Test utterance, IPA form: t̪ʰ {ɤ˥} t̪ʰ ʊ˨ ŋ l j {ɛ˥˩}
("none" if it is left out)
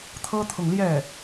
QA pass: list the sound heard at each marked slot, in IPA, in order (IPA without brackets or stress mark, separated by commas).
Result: ɤ˥, ɛ˥˩